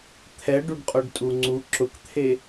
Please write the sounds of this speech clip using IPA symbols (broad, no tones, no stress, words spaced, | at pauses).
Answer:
t̪ʰɛɖuɖqʼoɖtʼu ŋ͡ǀu ǁʊkt̪ʰe